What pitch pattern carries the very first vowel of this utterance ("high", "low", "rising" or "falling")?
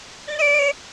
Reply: high